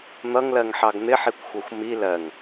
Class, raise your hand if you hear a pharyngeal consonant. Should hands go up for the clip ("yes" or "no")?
yes